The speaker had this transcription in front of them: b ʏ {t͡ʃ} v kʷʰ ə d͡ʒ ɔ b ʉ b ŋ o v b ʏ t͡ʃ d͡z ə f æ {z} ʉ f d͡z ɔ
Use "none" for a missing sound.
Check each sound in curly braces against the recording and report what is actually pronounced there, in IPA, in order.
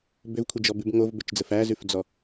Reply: none, z

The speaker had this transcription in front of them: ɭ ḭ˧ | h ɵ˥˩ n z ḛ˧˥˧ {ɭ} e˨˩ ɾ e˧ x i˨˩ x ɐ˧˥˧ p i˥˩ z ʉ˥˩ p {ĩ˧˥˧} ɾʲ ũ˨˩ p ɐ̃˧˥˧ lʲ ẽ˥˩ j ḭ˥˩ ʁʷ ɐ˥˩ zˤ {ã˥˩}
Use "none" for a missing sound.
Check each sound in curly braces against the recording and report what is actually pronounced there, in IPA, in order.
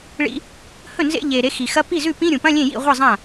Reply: ʎ, ĩ˧˥˧, ã˥˩

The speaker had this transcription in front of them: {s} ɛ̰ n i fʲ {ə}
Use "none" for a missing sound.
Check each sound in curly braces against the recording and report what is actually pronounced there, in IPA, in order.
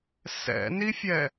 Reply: s, ɛ

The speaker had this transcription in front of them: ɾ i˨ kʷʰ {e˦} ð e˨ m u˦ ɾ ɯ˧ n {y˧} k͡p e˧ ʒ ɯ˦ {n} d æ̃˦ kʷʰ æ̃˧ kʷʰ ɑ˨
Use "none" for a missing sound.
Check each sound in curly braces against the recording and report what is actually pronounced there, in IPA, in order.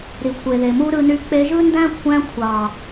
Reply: e˨, y˧, n

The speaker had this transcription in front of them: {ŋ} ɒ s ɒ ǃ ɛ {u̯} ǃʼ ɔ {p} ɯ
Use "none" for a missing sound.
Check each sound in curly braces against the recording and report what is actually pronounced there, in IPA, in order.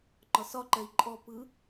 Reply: ŋ͡ǃ, i̯, p

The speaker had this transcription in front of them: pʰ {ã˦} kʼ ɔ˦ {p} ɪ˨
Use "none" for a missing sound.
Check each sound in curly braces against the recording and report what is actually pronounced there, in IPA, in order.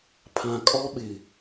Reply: ã˨, ɓ

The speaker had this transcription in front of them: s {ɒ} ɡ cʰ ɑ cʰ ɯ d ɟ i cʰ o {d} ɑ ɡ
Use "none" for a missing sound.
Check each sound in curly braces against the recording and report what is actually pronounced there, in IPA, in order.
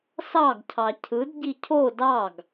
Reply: ɑ, d

